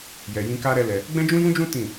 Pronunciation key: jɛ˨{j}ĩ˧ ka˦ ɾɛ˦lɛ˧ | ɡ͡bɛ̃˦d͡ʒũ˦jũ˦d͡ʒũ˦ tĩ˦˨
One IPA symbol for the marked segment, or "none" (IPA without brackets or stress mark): j